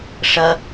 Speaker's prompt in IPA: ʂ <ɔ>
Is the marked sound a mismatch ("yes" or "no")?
yes